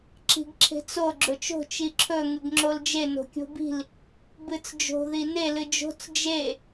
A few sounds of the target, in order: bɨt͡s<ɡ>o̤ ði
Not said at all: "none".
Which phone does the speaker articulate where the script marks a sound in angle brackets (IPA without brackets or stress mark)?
d͡ʒ